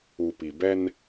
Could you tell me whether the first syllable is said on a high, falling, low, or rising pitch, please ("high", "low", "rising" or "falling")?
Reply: low